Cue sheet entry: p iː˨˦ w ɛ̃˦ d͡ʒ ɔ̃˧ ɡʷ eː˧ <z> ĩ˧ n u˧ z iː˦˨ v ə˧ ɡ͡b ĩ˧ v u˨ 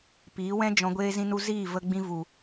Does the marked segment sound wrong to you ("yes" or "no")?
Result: no